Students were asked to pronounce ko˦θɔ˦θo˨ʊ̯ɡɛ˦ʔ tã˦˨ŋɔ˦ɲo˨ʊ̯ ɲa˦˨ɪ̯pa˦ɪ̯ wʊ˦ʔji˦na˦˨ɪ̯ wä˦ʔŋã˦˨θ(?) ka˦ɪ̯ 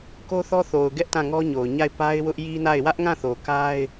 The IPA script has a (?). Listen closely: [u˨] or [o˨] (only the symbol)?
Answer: o˨